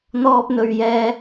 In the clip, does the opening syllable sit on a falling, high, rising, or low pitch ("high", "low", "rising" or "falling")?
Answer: high